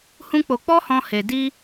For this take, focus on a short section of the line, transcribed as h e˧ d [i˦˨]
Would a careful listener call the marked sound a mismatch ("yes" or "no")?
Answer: yes